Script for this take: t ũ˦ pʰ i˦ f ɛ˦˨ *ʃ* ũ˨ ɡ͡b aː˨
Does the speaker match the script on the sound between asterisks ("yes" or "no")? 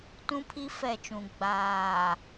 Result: no